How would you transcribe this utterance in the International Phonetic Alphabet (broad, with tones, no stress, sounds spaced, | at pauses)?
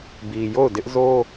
b i˨ j o˦˨ ʊ̯ d ɪ˦ ʔ z o˦